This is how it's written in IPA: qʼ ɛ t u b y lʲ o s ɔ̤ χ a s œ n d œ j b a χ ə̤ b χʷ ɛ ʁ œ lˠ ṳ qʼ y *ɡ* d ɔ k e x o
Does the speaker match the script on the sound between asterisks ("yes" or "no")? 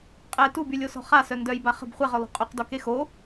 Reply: no